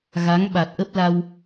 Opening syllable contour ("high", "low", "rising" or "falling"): rising